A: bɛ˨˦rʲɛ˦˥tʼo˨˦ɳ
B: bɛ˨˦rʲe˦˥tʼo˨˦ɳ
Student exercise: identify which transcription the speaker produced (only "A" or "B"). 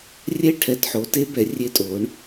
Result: B